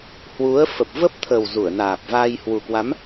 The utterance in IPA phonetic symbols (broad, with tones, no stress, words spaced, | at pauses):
hwu˨˦ə̯ fə˨˩p̚və˦˥p̚t̪ʰə˨˩w zu˧˩ə̯naː˨˩p̚vaː˧j hwu˨˩kwa˨˦m